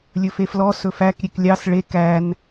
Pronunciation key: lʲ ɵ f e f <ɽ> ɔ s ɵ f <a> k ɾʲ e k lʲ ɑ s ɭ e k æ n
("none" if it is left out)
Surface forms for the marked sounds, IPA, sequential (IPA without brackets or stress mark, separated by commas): l, æ